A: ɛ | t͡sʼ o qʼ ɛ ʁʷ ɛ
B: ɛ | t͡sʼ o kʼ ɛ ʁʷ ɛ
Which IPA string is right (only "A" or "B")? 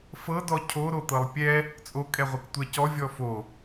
B